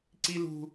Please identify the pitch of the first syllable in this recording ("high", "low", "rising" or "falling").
high